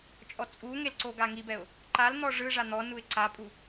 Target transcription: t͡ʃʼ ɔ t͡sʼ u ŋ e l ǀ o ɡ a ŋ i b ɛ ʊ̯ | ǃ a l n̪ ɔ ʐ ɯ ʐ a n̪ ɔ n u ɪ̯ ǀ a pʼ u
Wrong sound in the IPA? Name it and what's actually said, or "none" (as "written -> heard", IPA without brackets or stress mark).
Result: none